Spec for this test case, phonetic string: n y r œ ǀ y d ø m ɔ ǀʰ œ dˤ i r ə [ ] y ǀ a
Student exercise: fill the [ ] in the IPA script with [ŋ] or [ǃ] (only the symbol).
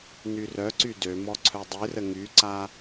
ŋ